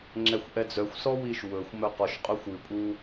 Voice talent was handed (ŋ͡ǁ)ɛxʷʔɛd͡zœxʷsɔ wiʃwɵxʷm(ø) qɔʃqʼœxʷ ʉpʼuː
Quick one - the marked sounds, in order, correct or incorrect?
correct, incorrect

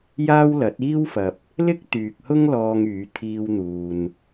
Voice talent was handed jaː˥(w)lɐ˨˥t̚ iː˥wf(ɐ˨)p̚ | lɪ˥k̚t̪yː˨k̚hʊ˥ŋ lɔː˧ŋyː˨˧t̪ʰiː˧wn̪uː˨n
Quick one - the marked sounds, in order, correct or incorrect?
correct, correct

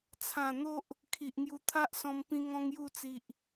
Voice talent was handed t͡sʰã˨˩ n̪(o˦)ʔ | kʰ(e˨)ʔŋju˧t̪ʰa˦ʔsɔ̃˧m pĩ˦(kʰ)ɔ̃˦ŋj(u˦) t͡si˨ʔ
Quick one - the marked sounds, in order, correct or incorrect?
correct, incorrect, incorrect, incorrect

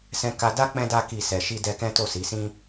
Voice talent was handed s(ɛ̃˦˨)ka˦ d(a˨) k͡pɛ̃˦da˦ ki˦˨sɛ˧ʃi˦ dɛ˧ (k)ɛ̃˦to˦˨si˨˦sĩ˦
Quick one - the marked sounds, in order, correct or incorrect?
incorrect, incorrect, correct

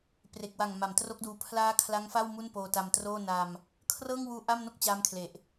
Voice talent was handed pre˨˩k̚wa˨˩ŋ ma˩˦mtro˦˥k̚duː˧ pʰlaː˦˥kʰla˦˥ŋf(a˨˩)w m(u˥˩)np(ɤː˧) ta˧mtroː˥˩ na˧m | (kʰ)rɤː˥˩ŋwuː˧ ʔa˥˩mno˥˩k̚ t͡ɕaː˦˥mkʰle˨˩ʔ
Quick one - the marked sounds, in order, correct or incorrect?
incorrect, correct, incorrect, correct

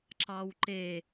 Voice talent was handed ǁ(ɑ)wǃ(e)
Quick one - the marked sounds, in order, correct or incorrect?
correct, correct

